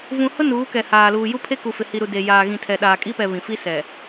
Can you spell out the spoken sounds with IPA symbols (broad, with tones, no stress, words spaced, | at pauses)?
vũ˨hʊ˦ nuː˨˦kɛ˨haː˨ luː˨ju˦pʰe˦ ku˨fɪ˨hi˨ɾu˨ de˨jaː˨ ɣĩ˨tʰɛ˨ ɗaː˨kʼi˦pɛ˨ βĩ˨ fi˦sɛ˨